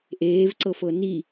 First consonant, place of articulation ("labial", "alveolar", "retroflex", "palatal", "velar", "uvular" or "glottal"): glottal